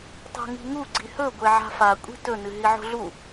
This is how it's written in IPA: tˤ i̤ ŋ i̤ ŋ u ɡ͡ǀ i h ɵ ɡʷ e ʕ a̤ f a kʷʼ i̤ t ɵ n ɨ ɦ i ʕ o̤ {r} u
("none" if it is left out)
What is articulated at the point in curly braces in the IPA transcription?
ɮ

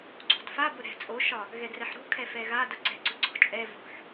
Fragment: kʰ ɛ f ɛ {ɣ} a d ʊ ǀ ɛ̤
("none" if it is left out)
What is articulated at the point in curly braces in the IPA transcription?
ɣ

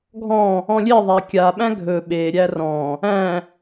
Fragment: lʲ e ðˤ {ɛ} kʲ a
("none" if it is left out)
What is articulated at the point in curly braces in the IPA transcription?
æ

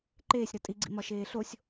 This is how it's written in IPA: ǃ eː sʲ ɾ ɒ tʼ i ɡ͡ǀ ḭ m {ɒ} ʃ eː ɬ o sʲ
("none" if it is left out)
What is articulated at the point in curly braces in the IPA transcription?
ɒ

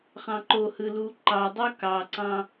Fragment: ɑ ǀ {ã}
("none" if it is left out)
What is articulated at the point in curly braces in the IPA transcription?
ɑ̃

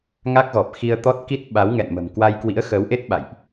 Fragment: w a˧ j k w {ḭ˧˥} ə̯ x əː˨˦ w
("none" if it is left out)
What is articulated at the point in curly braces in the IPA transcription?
ḭ˧˥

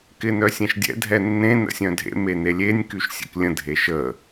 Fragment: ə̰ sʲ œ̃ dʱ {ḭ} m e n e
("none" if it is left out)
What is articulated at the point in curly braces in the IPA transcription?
ḛ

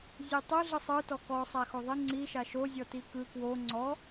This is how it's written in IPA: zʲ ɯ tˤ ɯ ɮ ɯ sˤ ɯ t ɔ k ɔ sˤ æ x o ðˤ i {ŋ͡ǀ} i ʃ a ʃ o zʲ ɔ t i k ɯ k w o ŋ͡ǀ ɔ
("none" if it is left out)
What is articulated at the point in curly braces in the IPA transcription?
ŋ͡ǀ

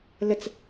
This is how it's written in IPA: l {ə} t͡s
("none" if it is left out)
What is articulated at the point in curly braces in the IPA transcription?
ə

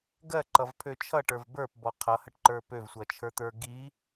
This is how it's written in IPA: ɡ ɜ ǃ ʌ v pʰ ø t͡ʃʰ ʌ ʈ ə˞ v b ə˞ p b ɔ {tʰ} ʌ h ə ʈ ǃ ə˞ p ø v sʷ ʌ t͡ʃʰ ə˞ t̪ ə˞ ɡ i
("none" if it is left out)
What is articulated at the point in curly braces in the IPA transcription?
qʰ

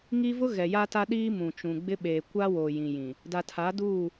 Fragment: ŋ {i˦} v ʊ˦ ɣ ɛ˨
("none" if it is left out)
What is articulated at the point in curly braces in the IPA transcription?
i˦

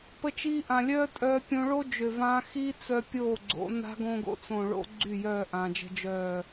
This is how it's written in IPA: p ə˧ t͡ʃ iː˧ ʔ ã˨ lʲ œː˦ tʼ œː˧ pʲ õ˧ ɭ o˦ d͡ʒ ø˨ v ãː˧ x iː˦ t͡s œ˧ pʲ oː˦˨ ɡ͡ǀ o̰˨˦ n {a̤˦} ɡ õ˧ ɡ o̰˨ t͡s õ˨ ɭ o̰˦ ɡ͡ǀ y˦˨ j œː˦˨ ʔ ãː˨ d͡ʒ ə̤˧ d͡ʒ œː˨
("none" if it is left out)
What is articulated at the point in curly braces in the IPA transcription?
a̤˦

